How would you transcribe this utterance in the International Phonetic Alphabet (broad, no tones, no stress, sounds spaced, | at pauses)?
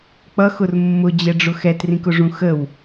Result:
k͡p ʌ x ʊ r mː ʊ d͡ʑ ɛ ɖ͡ʐ ʊ x ɛ t r ĩ k ʊ ʐ ũ x ə w